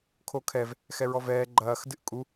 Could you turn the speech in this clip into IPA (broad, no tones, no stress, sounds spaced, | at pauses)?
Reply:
kʰ o kʰ ɛ v | x ɛ ɹ ɔ v ɛː ɡ͡ǃ ɐː x d ɨ ʔ kʼ u